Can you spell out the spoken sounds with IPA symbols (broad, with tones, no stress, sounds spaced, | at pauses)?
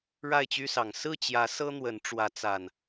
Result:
ɻ a˥˨ ɪ̯ t͡ɕ y˦ s ɑ˨˩ ŋ s ɹ̩˥˨ t͡ɕ j ä˨˦ s ɤ˦ n̪ w ə˨˦ n ʈ͡ʂ w ä˨˦ t͡s a˨˩ n